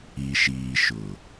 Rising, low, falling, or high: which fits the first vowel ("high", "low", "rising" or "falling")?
low